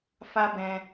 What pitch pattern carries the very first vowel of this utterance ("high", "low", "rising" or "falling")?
high